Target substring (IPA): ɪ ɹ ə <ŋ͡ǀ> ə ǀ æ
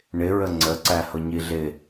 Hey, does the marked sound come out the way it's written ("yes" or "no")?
yes